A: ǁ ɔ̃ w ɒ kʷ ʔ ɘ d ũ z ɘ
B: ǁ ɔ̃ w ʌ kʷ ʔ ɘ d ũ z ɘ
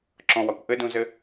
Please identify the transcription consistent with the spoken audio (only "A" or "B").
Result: A